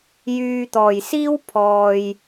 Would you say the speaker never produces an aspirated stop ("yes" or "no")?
no